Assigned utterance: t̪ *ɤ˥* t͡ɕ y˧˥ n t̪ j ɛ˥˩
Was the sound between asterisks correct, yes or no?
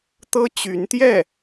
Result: yes